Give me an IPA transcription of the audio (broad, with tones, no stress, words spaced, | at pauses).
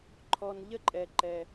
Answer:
ǃʰɔ˧nʎə˥ǃʼɛ˧ ǃɛ˧